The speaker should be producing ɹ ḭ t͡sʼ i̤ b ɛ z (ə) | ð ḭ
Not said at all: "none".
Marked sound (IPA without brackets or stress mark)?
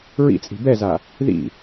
a